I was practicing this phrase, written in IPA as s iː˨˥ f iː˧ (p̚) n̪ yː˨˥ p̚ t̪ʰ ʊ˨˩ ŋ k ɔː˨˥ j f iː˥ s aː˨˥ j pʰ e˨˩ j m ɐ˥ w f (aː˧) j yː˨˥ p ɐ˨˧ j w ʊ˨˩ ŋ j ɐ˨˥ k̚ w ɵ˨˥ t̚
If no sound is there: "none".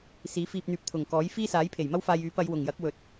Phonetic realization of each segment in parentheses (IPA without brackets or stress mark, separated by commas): p̚, aː˧